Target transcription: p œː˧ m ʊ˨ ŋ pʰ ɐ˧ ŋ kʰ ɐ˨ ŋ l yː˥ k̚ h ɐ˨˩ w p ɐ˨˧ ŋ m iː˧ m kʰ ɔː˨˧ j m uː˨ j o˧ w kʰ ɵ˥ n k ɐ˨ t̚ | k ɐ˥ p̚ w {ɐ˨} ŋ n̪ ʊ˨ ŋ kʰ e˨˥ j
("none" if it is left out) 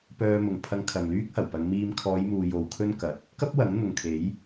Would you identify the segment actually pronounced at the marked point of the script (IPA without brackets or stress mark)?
ɐ˨˥